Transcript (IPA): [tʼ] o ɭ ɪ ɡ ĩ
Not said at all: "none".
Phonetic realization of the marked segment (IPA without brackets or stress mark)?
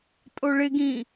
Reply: tʼ